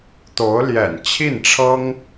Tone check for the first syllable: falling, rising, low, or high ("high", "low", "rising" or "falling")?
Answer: rising